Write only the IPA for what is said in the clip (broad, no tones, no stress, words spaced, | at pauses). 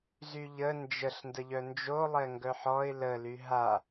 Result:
zyʎə nd͡ʒəɬ ndəʎœnd͡ʒo lˠɛŋɡœħɔɪ̯ lə lyɦa